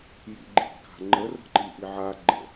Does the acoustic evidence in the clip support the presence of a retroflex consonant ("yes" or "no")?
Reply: no